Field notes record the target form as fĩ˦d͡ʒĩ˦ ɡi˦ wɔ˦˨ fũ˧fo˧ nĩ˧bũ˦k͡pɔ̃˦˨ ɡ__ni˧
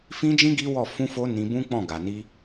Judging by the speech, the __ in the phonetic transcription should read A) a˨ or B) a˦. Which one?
A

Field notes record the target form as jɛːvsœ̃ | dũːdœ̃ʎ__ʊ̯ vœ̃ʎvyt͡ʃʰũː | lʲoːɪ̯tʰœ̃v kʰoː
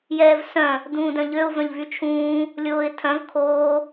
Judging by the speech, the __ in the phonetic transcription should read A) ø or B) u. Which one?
A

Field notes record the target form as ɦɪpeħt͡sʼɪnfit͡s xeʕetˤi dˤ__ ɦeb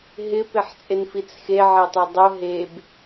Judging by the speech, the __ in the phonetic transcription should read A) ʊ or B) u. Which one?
A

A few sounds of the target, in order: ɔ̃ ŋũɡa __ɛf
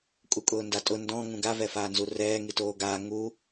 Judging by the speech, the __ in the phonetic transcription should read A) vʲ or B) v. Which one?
B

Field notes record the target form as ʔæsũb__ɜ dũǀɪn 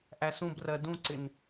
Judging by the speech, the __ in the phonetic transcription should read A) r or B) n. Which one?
A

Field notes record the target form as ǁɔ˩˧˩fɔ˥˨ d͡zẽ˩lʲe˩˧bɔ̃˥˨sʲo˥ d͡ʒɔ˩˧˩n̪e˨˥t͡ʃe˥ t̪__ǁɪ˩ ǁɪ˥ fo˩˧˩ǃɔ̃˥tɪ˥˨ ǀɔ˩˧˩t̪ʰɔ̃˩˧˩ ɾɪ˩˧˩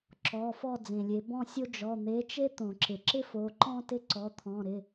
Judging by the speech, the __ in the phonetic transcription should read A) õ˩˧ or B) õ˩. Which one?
B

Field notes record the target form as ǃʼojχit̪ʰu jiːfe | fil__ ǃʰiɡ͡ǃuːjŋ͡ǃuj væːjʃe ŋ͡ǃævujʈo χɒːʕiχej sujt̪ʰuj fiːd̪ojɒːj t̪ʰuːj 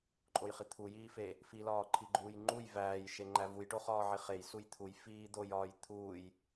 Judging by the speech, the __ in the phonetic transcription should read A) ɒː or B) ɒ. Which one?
A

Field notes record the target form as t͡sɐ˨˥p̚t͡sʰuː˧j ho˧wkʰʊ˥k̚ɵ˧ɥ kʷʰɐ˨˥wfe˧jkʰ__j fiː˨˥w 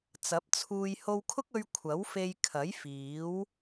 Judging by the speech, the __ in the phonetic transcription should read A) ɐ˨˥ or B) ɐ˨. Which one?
A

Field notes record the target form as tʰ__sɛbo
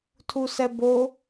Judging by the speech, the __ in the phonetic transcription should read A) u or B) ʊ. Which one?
A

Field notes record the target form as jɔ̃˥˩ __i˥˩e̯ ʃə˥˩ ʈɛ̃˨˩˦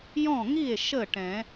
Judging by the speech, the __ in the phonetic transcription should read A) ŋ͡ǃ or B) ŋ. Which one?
B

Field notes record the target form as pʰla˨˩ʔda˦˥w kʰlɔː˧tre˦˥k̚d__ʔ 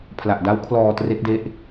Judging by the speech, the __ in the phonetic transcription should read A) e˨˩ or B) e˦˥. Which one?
B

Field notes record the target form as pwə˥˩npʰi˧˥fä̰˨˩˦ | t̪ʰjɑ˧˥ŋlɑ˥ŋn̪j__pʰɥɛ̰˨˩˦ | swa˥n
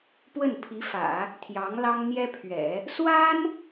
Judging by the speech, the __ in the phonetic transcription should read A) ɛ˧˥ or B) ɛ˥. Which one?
B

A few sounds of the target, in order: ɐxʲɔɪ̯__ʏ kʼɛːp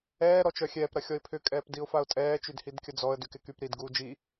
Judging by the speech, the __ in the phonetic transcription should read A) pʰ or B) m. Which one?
A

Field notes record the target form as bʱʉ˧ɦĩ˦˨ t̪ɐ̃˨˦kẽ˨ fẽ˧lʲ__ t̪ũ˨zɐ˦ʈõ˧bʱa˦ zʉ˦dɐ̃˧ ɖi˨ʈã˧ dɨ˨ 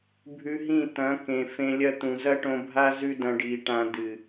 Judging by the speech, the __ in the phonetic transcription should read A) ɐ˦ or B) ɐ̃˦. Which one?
A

